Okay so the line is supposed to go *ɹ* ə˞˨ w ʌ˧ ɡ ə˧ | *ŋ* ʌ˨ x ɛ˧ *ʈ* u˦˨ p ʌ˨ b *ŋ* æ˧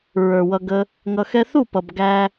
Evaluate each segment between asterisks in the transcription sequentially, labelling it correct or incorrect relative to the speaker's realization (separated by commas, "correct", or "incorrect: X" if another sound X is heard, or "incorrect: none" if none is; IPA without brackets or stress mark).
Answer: correct, correct, incorrect: θ, incorrect: ɡ